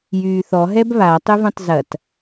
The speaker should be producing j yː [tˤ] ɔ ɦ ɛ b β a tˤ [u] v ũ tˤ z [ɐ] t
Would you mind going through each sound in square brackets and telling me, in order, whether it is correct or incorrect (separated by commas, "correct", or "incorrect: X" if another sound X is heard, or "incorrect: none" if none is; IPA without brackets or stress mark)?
incorrect: θ, incorrect: ʏ, correct